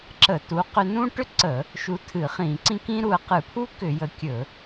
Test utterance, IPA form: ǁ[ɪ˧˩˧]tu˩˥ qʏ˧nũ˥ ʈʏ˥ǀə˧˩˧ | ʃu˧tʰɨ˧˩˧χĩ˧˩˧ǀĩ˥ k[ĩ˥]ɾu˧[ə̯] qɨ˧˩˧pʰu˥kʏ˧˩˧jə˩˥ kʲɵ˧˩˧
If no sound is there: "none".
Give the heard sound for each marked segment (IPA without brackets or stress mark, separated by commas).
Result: ə˧˩˧, ĩ˥, ə̯